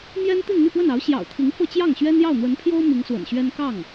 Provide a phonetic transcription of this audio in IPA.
mjɛ˥n t̪i˥˧nn̪y˥˧pwə˥˩nɑ˧˥ʊ̯ ɕjɑ̰˨˩ʊ̯t̪ʰi˧˥ŋ fɤ˥˧t͡ɕjɑ˥˩ŋɕɥɛ˥n jɑ˥˩ʊ̯n̪wə˧˥npʰjo˥ʊ̯ mi˧˥ŋswə̰˨˩nɕɥɛ˥n kɑ˥˩ŋ

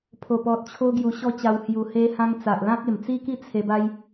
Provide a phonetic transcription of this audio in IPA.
pʰo˨˩pɔ˨t̚t͡ɕʰo˧ ɡju˧ɕɔ˦t͡ɕa˧whju˧ he˧hã˧ŋ t͡sa˨ʔlã˦k̚ e˨˩mt͡si˦ki˦ t͡sʰe˧ba˦j

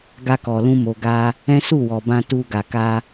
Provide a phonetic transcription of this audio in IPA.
ɡa˧kɔ˨lũ˧ mo˨ɡa˧ | ɛ̃˦su˦˨wɔ˨bã˧ tu˧ɡa˨ka˧

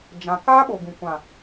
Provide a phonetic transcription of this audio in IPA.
d͡ʒã˨ kaː˦ɓo˨ ɡũ˨kʷã˨

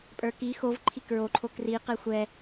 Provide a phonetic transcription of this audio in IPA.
pʼə˞ki xovǃʰi kɹoǃʰo kri qɛxʷɛ

